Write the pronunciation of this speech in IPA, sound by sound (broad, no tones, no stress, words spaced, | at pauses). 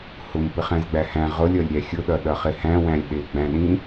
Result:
hʊm pɪχæ̃zɡ͡bæhæ̃ ʁʊlʲʌlʲ ɾʲæxʲʊɗʌ ɗʌχɪhæ̃wæ̃lʲ ɗɪɡ͡bæ̃ɗĩ